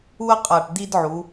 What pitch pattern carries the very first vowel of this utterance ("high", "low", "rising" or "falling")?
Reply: high